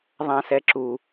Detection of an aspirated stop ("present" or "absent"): absent